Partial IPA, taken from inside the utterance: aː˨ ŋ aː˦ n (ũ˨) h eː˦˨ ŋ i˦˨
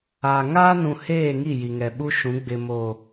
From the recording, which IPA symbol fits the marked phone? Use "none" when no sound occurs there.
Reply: ũ˨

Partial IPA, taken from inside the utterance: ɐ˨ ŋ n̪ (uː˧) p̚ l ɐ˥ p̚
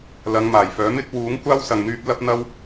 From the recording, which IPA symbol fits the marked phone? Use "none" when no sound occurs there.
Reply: yː˧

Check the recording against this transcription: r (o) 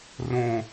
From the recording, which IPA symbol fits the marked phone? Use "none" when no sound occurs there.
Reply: õ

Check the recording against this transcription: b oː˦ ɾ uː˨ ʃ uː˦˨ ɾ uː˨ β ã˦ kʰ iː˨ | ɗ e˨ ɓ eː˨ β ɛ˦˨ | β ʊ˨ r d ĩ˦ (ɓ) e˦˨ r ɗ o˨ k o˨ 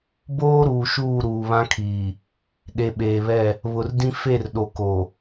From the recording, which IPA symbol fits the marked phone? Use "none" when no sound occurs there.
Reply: f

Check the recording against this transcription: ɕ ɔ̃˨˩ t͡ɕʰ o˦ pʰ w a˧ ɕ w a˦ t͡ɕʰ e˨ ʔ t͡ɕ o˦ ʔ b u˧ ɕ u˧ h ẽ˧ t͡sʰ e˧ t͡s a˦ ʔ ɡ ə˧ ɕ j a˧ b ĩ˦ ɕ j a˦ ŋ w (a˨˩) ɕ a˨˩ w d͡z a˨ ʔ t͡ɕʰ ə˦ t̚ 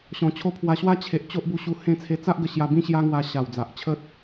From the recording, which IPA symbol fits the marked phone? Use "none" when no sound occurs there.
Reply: a˧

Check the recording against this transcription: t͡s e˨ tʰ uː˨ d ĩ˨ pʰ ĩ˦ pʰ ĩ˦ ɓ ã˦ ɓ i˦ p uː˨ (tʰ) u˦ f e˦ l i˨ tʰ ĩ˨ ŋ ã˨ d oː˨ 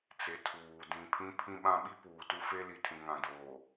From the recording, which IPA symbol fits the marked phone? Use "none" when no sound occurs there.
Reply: t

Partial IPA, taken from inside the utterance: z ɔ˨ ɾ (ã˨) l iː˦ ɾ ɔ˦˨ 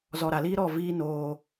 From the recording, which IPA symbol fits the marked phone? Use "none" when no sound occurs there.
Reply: a˨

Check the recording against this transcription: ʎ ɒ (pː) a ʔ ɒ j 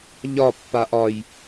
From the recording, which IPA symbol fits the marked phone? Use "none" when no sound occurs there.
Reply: pː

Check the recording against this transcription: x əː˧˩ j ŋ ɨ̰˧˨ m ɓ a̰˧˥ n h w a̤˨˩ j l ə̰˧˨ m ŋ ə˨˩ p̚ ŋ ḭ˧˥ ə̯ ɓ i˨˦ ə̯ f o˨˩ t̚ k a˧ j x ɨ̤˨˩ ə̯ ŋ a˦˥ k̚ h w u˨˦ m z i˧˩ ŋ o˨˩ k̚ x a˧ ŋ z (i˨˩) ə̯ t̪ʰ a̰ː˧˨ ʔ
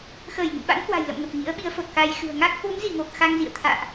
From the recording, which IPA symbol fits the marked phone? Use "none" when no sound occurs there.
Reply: ḭ˧˨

